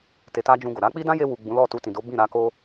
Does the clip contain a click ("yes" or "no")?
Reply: no